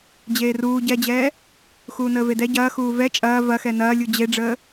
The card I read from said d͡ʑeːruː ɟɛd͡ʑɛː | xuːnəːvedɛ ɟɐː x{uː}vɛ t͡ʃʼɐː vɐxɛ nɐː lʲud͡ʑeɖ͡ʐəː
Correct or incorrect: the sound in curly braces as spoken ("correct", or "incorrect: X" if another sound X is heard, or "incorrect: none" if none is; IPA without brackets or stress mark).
correct